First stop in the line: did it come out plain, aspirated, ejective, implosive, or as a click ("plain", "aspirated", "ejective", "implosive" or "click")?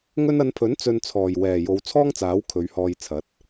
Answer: aspirated